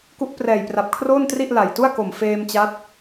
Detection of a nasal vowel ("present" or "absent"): absent